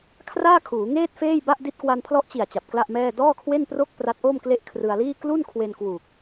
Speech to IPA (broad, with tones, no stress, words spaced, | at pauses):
kʰraː˥˩kʰuː˩˦ŋeː˥˩t̚ feː˥˩jba˥˩ʔ di˦˥t̚kwa˧npʰlɔ˦˥ʔt͡ɕi˨˩a̯ t͡ɕa˨˩p̚kla˥˩ʔmɛː˥˩ dɔː˥˩kʰwe˥˩npro˥˩k̚ pra˦˥t̚ʔoː˥˩mkle˥˩ʔ kʰrɯ˧a̯liː˥˩ klu˥˩nkʰwe˧n kwuː˨˩k̚